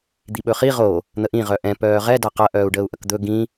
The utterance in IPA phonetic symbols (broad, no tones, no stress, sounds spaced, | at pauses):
d̪ i ɓ ɵ χ i ʁ o | n̪ ə ʔ ĩ ʁ œ ʔ ɛ̃ p œː ʁ ɛ d a q ɐ ʔ œː u̯ ɖ əː u̯ ʔ ɐ k d̪ ɵ ɡ ĩ